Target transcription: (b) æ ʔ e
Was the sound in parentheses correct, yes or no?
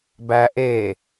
yes